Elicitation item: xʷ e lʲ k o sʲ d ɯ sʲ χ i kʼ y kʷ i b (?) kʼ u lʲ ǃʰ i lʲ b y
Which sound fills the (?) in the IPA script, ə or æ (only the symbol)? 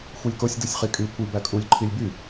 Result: æ